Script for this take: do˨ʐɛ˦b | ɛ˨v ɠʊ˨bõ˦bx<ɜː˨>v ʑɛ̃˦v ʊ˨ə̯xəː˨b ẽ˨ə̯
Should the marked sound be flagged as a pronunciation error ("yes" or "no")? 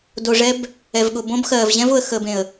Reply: no